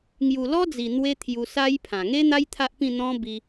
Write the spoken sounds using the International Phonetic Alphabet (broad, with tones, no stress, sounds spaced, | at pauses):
ŋ j u˨˩ l ɔ˦ d͡z i˨˩ n̪ w e˧ t̪ʰ j u˧ s a˦ j pʰ ã˨˩ ŋ e˦ n̪ a˦ j t̪ʰ a˦ ʔ p ĩ˥˧ n̪ ɔ̃˦ b i˧